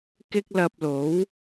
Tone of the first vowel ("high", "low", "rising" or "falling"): high